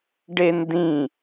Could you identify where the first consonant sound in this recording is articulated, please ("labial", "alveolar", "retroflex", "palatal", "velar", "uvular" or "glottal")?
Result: retroflex